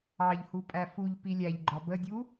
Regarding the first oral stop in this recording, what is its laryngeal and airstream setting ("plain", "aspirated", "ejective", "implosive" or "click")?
ejective